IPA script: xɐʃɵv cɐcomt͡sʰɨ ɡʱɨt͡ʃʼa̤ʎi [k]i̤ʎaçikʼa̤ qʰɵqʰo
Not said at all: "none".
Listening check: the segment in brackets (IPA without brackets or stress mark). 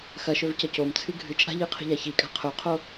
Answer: qʰ